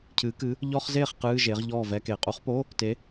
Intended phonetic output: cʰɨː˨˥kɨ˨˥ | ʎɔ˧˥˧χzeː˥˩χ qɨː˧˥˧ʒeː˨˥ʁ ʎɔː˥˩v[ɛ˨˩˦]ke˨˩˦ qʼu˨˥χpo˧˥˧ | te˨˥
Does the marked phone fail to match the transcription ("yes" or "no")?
yes